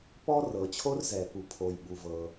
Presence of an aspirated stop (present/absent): present